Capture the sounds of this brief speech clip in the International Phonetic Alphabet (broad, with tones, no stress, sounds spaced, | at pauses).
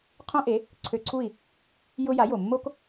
qʰ õ˥ ʔ e˩˥ | ǀʰ ø˧ ǀʰ u˥˩ i̯ | j ʊ˥ j a˩˥ j o˩ mː o˥ k